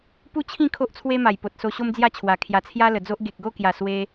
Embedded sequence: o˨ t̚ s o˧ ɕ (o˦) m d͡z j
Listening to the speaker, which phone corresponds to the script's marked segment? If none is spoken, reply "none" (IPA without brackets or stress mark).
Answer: o˦